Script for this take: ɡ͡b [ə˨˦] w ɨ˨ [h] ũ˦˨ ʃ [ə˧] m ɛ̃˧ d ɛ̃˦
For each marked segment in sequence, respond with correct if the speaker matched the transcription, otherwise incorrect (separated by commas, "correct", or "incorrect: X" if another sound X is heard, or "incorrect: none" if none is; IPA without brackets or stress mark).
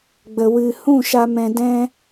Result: incorrect: ə˨, correct, incorrect: a˧